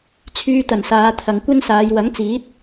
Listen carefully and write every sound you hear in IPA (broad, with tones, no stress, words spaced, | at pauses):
t͡sʰyː˨t̪ɐ˨˩n saː˨˧t̪ʰɐ˨ŋkʷɐ˥nsaː˨˧j wɐ˨˥ŋt͡siː˨˥t̚